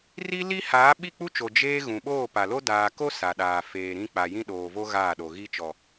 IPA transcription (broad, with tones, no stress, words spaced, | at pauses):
ri˦li˦ haː˨˦ɓi˦˨k͡pu˦t͡ʃo˨ d͡ʒeː˦ ɣũ˨ɓoː˦˨pa˨lo˦ daː˨ko˦ sa˨ɗaː˨ feː˨ɾĩ˦ k͡pa˨jĩ˦ɗoː˨vo˦ ɣaː˦˨ɗo˨ɣi˦ t͡ʃɔ˨